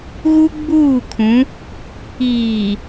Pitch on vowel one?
high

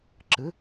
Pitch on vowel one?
rising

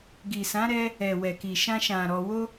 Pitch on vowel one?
low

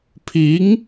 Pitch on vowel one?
rising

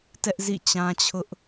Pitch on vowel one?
high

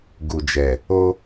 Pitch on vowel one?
low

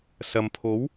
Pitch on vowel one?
low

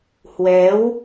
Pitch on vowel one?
rising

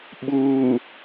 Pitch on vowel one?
low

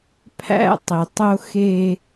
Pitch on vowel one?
high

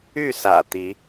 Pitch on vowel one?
falling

